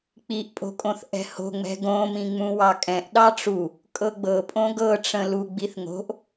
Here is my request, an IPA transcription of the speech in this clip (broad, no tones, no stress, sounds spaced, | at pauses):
k͡p i ʔ pʼ o̤ kʼ õ θ ʔ ɛ̤ h o̤ ŋ͡m ɛ̤ ɡ õ m ĩ ŋ͡m ũ w ɑ kʼ ɛ̃ ʔ ɗ ɑ ʈ͡ʂ u | kʼ ɤ ɡ͡b ɤ pʼ õ ɡ ɤ ʈ͡ʂ ə̃ l u ɡ͡b i θ ŋ o̤ ʔ